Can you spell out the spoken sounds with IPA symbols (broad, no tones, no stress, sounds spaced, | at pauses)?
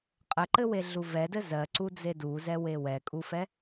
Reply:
qʼ ɘ ǃ ɘ w e ɮ u v ɛ d ɘ z ɜ ǀ u d͡z e d u z ɛ w e w ɛ kʼ u f ɛ